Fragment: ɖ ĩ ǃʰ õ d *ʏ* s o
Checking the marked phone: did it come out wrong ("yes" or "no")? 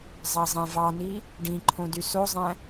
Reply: yes